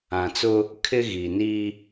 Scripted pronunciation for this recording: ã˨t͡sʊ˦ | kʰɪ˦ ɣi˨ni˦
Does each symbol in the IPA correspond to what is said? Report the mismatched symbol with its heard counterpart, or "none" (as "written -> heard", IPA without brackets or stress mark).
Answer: none